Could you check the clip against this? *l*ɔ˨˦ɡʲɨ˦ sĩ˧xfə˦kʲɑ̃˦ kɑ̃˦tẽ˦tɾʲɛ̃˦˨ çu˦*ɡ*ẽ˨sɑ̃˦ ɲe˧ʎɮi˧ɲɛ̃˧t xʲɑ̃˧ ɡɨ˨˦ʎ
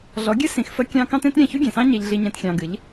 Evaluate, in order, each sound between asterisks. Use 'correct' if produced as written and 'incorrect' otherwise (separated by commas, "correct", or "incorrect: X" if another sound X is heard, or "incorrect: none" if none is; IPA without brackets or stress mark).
incorrect: ɮ, incorrect: ɡʲ